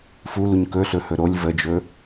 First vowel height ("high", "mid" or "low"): high